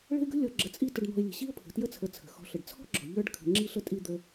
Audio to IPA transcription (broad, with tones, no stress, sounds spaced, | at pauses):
ɭ ə̤˦ ɪ̯ ɡ ə̤˥ lʲ ɔ˨ ɡ͡ǁ ə˨ t͡sʼ i˦ t ə˨ ɖ n̪ ɔ̤˨ ɪ̯ lʲ ə̤˩ ɕ i˦ ʊ̯ pʰ ə̤˩ t j ə˦ t͡sʰ ə˨ t͡sʰ ə̤˩ x ɔ̤˨ ɬ ə˩ ɖ t͡sʰ ɔ̤˥ ɡ͡ǁ ɔ̤˩ ʎ ə˞˦ ɖ kʰ ə̤˨ ŋ͡ǁ i˥ ɬ ə˦ tʼ i˦ d̪ ə˦